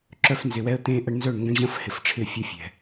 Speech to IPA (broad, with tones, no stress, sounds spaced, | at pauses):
ǁ œ˦ f n z ɪ˨ w ɛ˦ ə̯ t̪ ẽː˦ ʔ ɐ˦ ɳ n z œ˦˨ ɳ ŋ ɡ ɐ̃˦ ɳ ʑ ɐ̃˦ f h ɪ˨ f ʈ͡ʂʰ ɪː˦˨ fʲ ʌ˦ fʲ ɛ̤˨